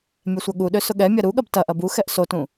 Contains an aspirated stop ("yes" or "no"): no